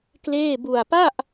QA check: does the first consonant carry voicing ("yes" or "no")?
no